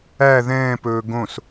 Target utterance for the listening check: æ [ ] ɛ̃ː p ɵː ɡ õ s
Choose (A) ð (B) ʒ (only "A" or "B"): A